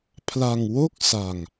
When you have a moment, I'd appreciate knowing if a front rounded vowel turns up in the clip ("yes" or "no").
no